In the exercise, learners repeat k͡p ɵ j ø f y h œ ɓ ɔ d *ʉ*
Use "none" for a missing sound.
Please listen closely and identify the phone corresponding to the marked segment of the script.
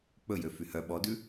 ʉ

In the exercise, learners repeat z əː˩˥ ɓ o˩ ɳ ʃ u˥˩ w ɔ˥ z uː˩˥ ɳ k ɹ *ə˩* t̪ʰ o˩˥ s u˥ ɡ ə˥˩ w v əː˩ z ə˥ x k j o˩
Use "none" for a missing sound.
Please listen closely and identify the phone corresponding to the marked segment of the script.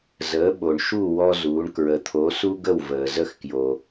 ə˩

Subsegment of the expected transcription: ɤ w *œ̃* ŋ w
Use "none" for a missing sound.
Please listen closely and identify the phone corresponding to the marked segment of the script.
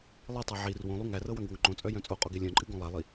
œ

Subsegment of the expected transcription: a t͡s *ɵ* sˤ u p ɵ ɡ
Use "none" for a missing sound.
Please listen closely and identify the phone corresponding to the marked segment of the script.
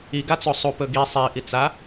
o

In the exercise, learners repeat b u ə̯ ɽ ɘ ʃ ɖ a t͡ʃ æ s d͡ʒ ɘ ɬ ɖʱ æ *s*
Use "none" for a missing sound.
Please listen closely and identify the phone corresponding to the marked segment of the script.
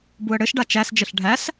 s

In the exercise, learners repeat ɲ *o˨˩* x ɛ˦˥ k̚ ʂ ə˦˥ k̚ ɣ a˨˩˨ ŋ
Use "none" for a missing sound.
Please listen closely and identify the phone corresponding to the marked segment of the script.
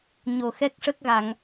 o˨˩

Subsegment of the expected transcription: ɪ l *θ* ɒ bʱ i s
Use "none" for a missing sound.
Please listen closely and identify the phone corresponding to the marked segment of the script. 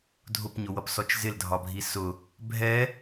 dʱ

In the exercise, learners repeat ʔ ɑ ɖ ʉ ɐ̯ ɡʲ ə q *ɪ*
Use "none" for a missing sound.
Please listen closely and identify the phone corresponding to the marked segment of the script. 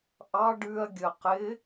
ɪ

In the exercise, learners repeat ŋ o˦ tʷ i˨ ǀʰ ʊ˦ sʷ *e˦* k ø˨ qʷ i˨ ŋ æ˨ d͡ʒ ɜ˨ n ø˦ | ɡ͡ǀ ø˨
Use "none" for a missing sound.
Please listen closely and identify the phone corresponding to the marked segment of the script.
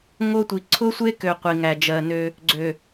e˦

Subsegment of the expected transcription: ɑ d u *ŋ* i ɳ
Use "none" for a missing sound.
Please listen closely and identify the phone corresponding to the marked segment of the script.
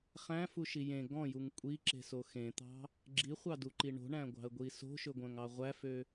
ǃ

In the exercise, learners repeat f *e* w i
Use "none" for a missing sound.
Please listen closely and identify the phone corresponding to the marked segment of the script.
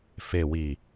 e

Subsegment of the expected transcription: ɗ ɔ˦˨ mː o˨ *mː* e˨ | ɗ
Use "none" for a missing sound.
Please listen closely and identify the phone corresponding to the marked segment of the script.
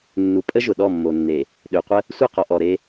nː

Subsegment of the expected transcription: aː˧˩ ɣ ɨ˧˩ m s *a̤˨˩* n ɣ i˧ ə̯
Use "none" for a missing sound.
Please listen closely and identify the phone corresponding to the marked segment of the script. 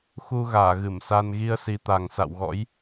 a˧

